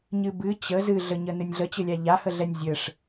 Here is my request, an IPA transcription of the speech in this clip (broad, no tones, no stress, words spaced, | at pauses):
ɲɨbɨ t͡ɕə zɨɮəɲə nɨnʲɮət͡ɕɘlʲa ʎahəɮɛnʲ zʲɘʂ